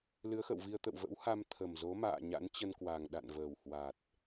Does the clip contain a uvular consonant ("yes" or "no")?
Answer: no